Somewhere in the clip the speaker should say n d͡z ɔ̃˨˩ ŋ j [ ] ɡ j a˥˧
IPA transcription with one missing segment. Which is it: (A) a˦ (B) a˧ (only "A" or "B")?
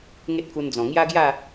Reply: A